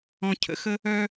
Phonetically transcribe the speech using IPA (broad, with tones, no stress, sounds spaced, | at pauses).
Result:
ɔ̃˧ cʰ ə̰˩˥ x ə˥ | œ˥